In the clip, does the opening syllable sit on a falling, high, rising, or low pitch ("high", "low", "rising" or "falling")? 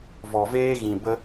low